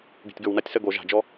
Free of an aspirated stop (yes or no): yes